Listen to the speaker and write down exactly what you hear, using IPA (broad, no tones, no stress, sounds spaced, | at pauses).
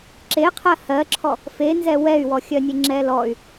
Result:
ǁ e qʰ ɜ h ɜ ǁʰ ɔ | f e n z ɛ w ɛ y̯ w ɔ xʲ ɜ nʲ e ŋ͡ǁ ɛ l ɔ y̯